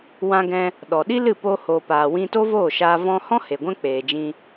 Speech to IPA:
w ã˧ ɡ ɛ̃˧ | ɗ ɔ˨ ɗ i˦ l ɨ˦˨ p o˧ h o˨ p aː˨ w ĩ˧ t o˦ v oː˦˨ ʃ aː˧ v ɔ̃˧ h ɔ̃˦ h e˨ ɡʷ ɛ̃˦ k͡p eː˨ d͡ʒ ĩ˧

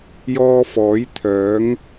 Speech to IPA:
j ɔː˧ f ɔː˨˥ j t̪ʰ œː˨˥ ŋ

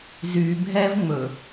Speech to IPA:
z y bʱ ɛ v ŋ͡m ɵ

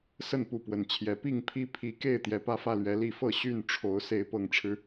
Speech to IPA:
s ə˥˨ n p u˥˨ p w ə˨˩ n t͡ɕʰ j ɛ˨˦ p i˥˨ ŋ pʰ i˦ pʰ i˨˦ k e˥˨ ɪ̯ t̪ j ɛ˨˦ p ä˦ f ä˥˨ l ɥ ɛ˨˦ l i˨˩ f ɤ˥˨ ɕ y˥˨ n ʈ͡ʂʰ o˨˦ ʊ̯ s e˨˦ ɪ̯ p ɤ˨˩ ŋ ʈ͡ʂʰ ɻ̩˦

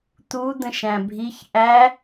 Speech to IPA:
t̪ u d̪ ə̃ ʃ æ̃ bʱ i ç ʔ æ

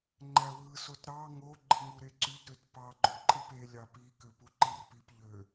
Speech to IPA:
ŋ͡ǃ æ w ɯ s o t ɾ ɑ ŋ o ɡ͡ǃ ɯ ŋ u ɾ e ǀ y d ɾ ø t p ɑ ɡ͡ǃ o ǃʼ i p e lʲ ɑ p i k ø p u ǃ i r p i p ʎ ø

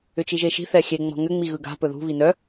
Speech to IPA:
ʏ t͡ʃ i ʒ e ʃ i̤ θ ɛ xʲ e ŋ͡m ɔ̤ ŋ ʏ ŋ͡m i ɣ ɯ ɡ a̤ p ɵ ð ṳ β i n œ

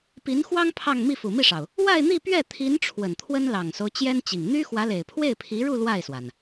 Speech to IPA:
p i˧˥ n x w ɑ˥ ŋ pʰ ɑ˥˧ ŋ m i˥˩ f u˨˩ m i˥˩ ʂ ɑ˩ ʊ̯ | w a˥˧ ɪ̯ n̪ i˥˧ p ɥ ɛ˥˩ t̪ʰ i˧˥ n ʈ͡ʂʰ w ə˨˩ n t̪ʰ w ə˥ n l ɑ˨˩ ŋ s o˦ ʊ̯ t͡ɕ j ɛ˥ n t͡ɕ i˨˩ ŋ n̪ y˥ x w ä˧˥ l e˨˩ ɪ̯ pʰ w e˥˩ ɪ̯ pʰ i˧˥ ɻ u˥˧ l w a˥˩ ɪ̯ s w a˩ n

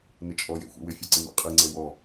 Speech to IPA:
n ɪ t͡ʃʼ ɔ j ḛ xʷ ḭ w ɪ fʲ ɜ ǀ ɪ m ḛ qʼ i ŋ͡ǀ e w ɔ

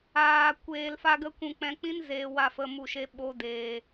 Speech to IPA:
aː˧ kʷ eː˧ l f a˦ ɡ ə˦ kʷ ũ˧ k͡p ɛ̃˧ k͡p ĩ˦ n z eː˧ w a˧ f ə˧ m u˦˨ ʃ e˦ ɓ o˦ d eː˧

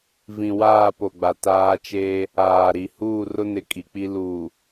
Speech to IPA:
v ĩ˨ w aː˦˨ p o˨ ɡ͡b a˨ t aː˦ t͡ʃ eː˦ | aː˨ ɾ i˨ h uː˦˨ r ʊ˦ n ɪ˨ kʼ i˨ k͡p i˦ l uː˨

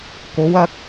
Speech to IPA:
k o˨˧ w ɐ˧ k̚

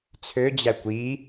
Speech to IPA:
t͡sʰ ø d͡ʑ æ kʷ i

